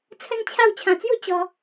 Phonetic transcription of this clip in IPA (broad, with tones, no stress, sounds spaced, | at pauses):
t͡sʰ ə˦ n t͡ɕʰ a˥˧ w t͡ɕʰ ã˨˩ t͡s j u˥˧ t͡ɕ ɔ˧